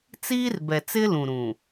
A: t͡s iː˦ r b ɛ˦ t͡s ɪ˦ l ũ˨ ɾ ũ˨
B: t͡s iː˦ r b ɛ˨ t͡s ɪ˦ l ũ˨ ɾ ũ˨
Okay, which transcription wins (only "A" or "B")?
B